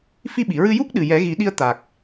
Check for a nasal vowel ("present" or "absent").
absent